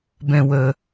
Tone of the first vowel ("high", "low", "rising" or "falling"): low